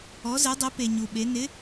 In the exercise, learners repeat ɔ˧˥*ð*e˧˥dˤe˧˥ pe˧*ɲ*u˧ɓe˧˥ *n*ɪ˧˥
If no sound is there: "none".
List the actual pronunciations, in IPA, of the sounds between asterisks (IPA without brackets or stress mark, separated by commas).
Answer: z, ɲ, n